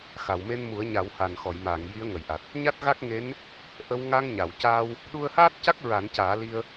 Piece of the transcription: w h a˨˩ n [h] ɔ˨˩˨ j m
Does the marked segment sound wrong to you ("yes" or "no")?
yes